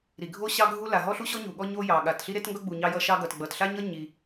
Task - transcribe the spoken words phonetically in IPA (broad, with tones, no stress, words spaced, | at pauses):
ɾi˩ɡʱo˥ ɕɑ˥ɡʱu˥ la˩ɦɔ˥ɬu˥ɕɔ˥ ɲu˩ɠɔ˥ ɲo˥jɑ˩ɠa˩t ɬi˥ɾe˥tŋɡʌ˥ɡ͡bu˩ ɲɑ˥jʌ˥ʃɑ˥ɡʌ˩t ɡ͡bʌ˩tɬa˥ɲʌ˥ ɲi˩